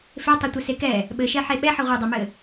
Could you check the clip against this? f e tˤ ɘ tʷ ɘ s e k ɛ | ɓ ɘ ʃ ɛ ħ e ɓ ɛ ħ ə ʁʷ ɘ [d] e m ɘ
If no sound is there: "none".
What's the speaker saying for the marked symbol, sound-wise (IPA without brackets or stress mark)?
dˤ